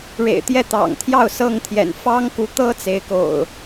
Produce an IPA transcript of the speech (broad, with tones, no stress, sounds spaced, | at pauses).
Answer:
ɻ ḛ˨˩ ɪ̯ t̪ j ɛ˥˨ t̪ ɑ̰˨˩ ŋ t̪ʰ j ɑ˥˨ ʊ̯ s ɤ˥˨ ŋ t̪ʰ j ɛ̰˨˩ n f ɑ˦ ŋ k u˨˦ t̪ ɤ˦ t͡s e˨˦ ɪ̯ k o̰˨˩ ʊ̯